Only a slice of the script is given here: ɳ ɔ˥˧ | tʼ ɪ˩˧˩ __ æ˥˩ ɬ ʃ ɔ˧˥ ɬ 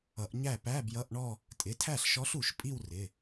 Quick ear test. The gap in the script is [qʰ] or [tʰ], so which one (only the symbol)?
tʰ